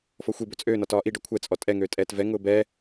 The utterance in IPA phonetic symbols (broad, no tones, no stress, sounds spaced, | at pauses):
f ɔ xʷ i b ø t͡sʼ øː n ɒ t ɒː ʔ i ɖ ɔ kʷʰ ɛ t͡sʼ ɔ tʼ ɛ ŋ øː tʼ ɛː t v ɛ ŋ ʊː b ɛː